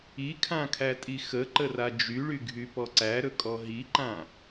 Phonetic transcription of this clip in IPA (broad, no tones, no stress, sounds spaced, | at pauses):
i kʰ ã kʰ æ tʼ i x ə ǃ ə r a d͡ʒ y ɭ y ɡʱ y p ɔ ǀ æ ɾ ɵ kʼ ɔ ɦ i ǃ ã